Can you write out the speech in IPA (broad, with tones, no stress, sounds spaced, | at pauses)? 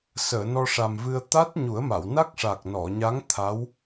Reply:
s əː˨˩˨ n ɔ˧ ʂ a˨˩ m v ɨ˧ ə̯ t̪ a˦˥ t̚ ɲ u˨˩˦ ə̯ m a˨˩˨ w n a˦˥ k̚ ʂ a˨˩ k̚ n ɔ˨˩˨ ɲ a˧˥ ŋ t̪ʰ a˧˥ w